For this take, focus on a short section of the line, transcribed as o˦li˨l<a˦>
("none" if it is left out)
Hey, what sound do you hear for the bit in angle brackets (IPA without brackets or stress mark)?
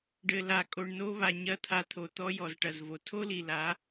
a˨˦